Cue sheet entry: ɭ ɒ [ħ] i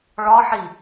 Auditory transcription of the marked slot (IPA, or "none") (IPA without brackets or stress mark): ħ